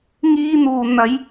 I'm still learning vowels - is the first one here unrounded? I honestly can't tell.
yes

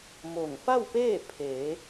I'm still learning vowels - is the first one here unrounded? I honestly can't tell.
no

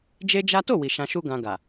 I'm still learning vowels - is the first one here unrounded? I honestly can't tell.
yes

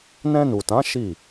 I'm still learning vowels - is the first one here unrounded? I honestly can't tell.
yes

